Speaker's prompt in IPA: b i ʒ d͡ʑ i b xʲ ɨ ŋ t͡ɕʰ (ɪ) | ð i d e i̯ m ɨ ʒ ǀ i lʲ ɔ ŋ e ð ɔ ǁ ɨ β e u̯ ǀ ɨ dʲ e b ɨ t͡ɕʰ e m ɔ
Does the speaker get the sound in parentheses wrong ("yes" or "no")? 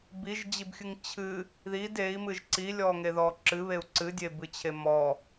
yes